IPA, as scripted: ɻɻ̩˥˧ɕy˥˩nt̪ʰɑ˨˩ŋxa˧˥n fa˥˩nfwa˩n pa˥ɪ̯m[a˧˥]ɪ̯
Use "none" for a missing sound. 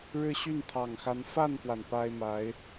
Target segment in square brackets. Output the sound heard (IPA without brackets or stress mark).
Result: a˧˥